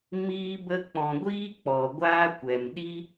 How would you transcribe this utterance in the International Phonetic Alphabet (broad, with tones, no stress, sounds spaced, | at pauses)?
m iː˦ b ə˦ k͡p ɔ̃˧ ɡʷ iː˦ k͡p ɔ˨ ɡʷ aː˦ kʷ ɛ˨ m ɗ i˦